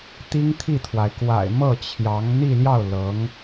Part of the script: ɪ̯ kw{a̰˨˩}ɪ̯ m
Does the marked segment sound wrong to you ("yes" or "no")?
no